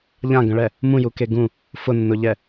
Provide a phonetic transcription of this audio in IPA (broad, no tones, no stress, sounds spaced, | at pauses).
ʎ ã ɡ ə̃ ɭ ɛ | m ũ j u k e ɡ ũ | f ʊ nː ʊ ʎ ɛ